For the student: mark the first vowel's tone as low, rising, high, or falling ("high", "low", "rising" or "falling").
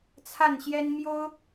falling